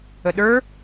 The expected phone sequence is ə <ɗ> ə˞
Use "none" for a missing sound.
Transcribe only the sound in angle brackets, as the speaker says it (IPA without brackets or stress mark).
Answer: ɗ